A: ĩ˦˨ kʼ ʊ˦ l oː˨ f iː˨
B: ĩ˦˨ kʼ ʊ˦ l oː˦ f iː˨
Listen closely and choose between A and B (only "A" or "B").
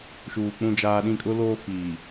B